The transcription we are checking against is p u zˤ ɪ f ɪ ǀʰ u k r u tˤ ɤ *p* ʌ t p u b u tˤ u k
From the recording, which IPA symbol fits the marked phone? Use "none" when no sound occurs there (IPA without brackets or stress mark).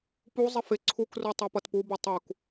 p